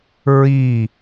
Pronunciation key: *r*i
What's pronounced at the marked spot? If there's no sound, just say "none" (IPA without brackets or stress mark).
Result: ɹ